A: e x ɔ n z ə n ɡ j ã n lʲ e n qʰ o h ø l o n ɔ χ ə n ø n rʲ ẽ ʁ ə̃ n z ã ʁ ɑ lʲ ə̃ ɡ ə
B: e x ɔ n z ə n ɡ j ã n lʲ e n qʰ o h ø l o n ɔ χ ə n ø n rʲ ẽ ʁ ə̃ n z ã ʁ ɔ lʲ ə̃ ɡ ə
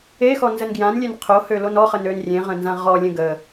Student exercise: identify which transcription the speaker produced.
B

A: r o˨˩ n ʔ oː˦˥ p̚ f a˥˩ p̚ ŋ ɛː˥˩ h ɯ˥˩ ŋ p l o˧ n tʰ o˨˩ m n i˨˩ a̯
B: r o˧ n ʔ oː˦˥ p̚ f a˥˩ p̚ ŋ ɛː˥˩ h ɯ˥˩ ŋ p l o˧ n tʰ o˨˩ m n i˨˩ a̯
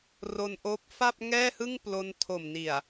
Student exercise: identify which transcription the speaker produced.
B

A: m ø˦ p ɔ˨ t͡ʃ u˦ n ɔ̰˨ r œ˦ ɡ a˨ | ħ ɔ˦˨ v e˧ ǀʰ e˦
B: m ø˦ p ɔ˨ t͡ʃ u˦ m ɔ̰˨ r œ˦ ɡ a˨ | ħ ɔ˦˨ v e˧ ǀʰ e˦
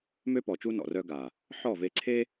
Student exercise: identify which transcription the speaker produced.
A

